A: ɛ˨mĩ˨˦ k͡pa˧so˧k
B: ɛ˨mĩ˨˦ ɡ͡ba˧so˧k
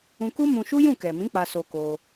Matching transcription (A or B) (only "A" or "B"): A